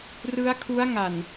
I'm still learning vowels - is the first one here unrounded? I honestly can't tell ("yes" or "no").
yes